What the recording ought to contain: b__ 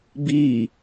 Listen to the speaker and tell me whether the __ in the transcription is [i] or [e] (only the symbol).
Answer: i